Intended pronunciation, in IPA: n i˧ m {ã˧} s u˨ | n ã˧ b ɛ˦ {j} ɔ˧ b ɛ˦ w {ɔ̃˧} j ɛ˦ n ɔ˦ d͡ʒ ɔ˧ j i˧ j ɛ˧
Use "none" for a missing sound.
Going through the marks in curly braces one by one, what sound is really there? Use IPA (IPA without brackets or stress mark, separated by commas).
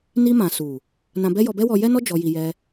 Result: ã˨, j, ɔ˧